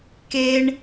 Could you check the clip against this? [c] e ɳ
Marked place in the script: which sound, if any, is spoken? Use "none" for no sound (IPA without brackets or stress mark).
k